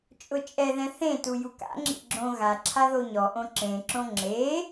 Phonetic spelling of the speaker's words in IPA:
t͡ʃʼʊt͡ʃʼɛðɛ̃ θẽtu juka̰ŋ͡ǁḭ ɡ͡ǁõ ɣa ǁʰaðoɲɔʔõ ǁẽǁõ ŋ͡ǁe

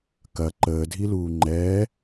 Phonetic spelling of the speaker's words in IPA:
kɐ ǃəːdʱiluː ŋ͡ǃɛː

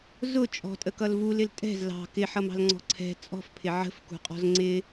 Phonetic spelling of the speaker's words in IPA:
zʊ t͡ʃʼɔ̤tʼəkʌl vulɪl tʼɛ̤z lɑ̤ kɪħʌmɑ̤lŋ͡ǀɔ̤ ǀʰɛ̤ t͡sʼɔ̤fpʰɪ ʕə̤fkṳqʼɔ̤z ŋ͡ǀɪ

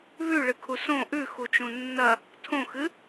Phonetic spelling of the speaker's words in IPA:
βʉɭɨkʰu sõ ʔʉxut͡ʃũ nːɐ | tʰõxɨ

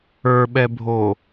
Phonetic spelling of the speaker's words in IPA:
ə˞ɓɛbʱo

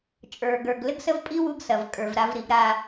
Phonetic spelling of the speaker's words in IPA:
t͡ʃʼə˞˨ɡə˞˨ɡ lɘ˦ɡsə˦vpʼi˦ wu˦ɡsɐ˨v kʼə˞˨vɾa˦vɾi˨˦ɡ ɾa˦

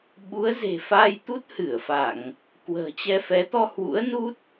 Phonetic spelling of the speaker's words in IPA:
ɓu˨˦ə̯ze̤˨˩fa˧jt̪u˦˥t̚ hɨ˧˩ə̯fa˧˩˨ŋ | kwə̤ː˨˩t͡ɕɛ˧fɛ˨˦ t̪ɔ˧hwṵ˧˥ə̯ nu˦˥t̚

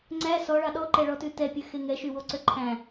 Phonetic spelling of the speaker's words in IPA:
ŋ͡ǀæ sɔɭɑ ɗɔǃɛɭɔtʉ tɛpʲøxe ŋɛʃywoǀø ǃʰæ̃

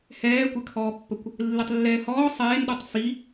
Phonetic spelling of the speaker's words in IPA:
hɛːkʷɛkʰɔːpːəkʷ | lːitˤlːɛːhɔː sˤeːnɗɔtˤ fi

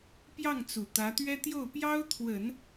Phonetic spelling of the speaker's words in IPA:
pjɑ˥˩ŋt͡su˨˩ t̪ä˧˥t̪ɥɛ˥ t̪jo˥˩ʊ̯ pjɑ˥ʊ̯t̪ʰwə˨˩˦n

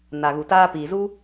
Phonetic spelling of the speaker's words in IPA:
na˨ɣu˨taː˧piː˨ zu˦

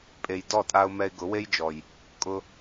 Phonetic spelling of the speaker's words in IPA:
pʼe˨jdɔ˦˨tʼa˧ʊ̯ mɛ˧ɪ̯ɡʊ˨˦we˦jd͡ʒɔ˨j | kʼʊ˧

